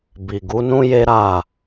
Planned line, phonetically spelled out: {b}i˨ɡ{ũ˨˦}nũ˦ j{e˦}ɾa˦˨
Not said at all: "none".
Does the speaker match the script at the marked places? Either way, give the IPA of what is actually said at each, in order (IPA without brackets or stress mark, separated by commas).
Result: b, u˨˦, e˦